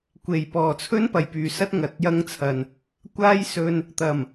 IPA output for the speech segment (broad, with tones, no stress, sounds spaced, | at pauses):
kʷ e˨˩ j p ɔː˨˩ t͡sʰ ɵ˥ n p ɐ˨˩ j p yː˨ s ɐ˥ t̚ ŋ ɐ˨˥ t̚ j ɐ˥ ŋ t͡sʰ ɐ˨ n | kʷ aː˥ j s ɵ˧ n | t̪ ɐ˨˩ m